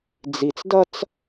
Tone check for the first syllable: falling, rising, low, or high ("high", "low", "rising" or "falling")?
low